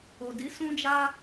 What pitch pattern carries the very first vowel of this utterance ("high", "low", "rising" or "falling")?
low